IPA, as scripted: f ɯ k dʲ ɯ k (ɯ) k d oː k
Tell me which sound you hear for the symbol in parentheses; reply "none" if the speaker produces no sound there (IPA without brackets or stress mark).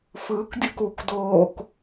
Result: u